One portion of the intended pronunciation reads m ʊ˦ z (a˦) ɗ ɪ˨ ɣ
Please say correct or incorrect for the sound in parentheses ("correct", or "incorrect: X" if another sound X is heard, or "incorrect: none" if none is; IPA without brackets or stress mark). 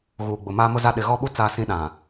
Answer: correct